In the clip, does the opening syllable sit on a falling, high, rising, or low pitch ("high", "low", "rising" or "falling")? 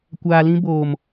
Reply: low